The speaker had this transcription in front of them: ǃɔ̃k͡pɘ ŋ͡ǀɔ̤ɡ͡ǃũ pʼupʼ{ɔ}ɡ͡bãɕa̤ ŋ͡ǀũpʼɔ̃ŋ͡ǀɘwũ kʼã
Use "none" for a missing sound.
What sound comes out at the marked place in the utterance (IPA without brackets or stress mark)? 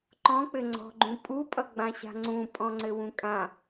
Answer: ʌ